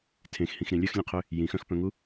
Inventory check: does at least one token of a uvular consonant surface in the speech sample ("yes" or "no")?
yes